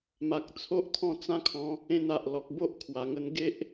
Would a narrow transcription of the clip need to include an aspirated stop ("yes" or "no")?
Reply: yes